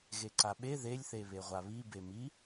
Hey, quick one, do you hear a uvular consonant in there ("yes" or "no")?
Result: yes